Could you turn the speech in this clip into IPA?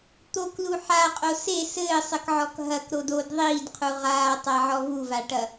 t̪ o k l u ħ a qʼ o s e s ɘː sˤ ɘ k ʕ ɔ k ɦ ɐ k ɾ o d o d ðˤ iː d qʰ u ʁ aː tˤ a ʕ ɔ v u v a ʈ ɐ

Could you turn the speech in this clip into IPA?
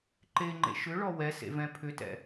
ǃ e ŋ͡ǃ ḛ ʃ ʏ ɭ ɔ w ɛ s ḛ v ɛ̃ pʰ ʏ t ɛ̰

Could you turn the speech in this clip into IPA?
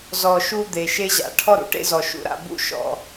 z ɔ˨˩ ʃ u˧ d̪ e˨˩ ʃ e˥ ʑ a̰˨˩ ʈʰ ɔ˥ ɾ ṵ˨˩ ʈ ḛ˥ z ɔ˨˩ ʃ ṵ˥ ɾ a̰˧ b ṵ˥ ʃ ɔ̰˧

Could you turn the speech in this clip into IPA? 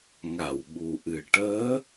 ŋ a˨˩˨ w ɓ u˨˩ ʔ ɨ˨˩ ʈ əː˧˥

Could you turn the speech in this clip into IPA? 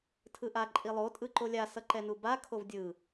tʰ ɯ ʔ a ǃʼ i lˠ o tʼ ɯ ǃ o lʲ a s ʌ ǃ ɛ n u b a kʰ o v dʲ ɯ

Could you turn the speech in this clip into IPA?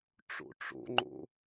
ʈ͡ʂ o̰ ʈ͡ʂ o̰ ŋ͡ǃ o̰

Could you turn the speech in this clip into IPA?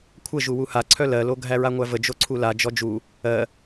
kʷʰ ə ʒ u w u h a ǀʰ œ l ɜ l o ɡʱ æ ɹ a ŋʷ æ v ə d͡ʒ o ǀʰ u l a d͡ʒ ɔ d͡ʒ u | ɜ

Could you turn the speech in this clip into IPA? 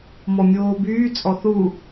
m ɔ mʲ oː b yː t͡sʼ ɔ θ u

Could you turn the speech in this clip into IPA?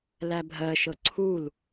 l æ bʱ ɜ ʃ ɤ ǀʰ u l

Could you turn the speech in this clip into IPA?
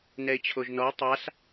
n ɛ ɪ̯ t͡ɕʰ o ʒ n ɔ ʊ̯ tˤ a s

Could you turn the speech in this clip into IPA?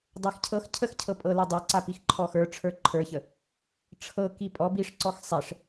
dˤ ɛ x cʰ ɤ x cʰ ə x cʰ ɤ pʼ ɤ l ɤ dˤ æ ǀ a p i x ǃʰ ɔ x ə˞ ʈ͡ʂʰ ə˞ ǃʰ ə˞ ç ə | ʈ͡ʂʰ ɤ k i pʼ ɔ b i ʂ ǀ ɔ x sˤ ɛ ʂ

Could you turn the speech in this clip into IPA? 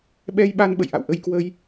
ɓ ɛ˧ j ɓ a˧ n ɓ ə̰˧˨ j ʔ a̰˧˨ w ʔ ə˧ j k w ə˧ j

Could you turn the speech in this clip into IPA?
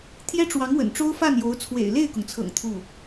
t̪ʰ j ɛ˥ ʈ͡ʂ w ɑ˧˥ ŋ w ə̰˨˩ n ʈ͡ʂ o˥ ʊ̯ f a˥˩ n j o˧˥ ʊ̯ t͡sʰ w ḛ˨˩ ɪ̯ l e˥˩ ɪ̯ k ʊ˩ ŋ t͡sʰ ɤ̰˨˩ ŋ t̪ʰ u˥˩

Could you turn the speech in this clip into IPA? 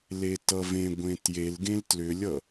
l e t ʌ v ẽ ɡʷ ẽ t j e l ɡ ẽ l t l ʏ lʲ ʌ

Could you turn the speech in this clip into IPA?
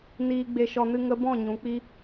n iː˧ ɡ͡b e˧ ʃ ɔ˧ n ɨ˧ ŋ ə˧ b ɔ̃˦˨ ɲ ũ˨˦ k͡p i˦

